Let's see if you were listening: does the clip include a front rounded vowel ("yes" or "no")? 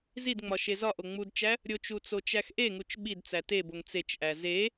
no